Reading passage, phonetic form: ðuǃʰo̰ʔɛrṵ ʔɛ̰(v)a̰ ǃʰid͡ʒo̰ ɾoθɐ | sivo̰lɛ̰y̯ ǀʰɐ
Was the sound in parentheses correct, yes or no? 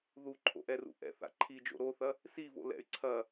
no